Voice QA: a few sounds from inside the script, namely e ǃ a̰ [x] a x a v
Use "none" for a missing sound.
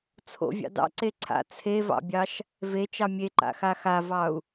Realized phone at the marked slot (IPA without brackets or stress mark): x